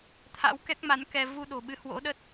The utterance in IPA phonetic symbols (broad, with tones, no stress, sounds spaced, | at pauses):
t̪ʰ a̰˧˥ w k ɛ˦˥ k̚ m a˨˦ n k ɛ˧ v u˧ ɗ o̤˨˩ ɓ ɨ˨˦ h w o̰˧˥ ɗ ə˦˥ t̚